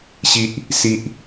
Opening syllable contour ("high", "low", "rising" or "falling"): high